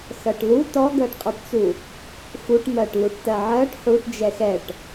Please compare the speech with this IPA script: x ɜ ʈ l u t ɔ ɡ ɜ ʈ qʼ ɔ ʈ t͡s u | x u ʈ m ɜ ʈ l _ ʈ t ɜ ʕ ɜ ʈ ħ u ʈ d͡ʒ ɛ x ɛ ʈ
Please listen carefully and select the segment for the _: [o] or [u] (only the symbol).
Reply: u